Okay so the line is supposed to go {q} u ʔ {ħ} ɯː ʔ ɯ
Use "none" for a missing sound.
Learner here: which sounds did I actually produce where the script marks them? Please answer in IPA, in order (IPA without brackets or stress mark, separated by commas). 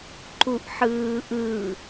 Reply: ǃ, ħ